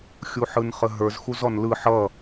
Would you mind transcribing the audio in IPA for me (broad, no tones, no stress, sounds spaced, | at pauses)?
xʲ u ħ ɯ n χ ə ɦ ə˞ z x u z ɔ n l ɯ ħ ʌ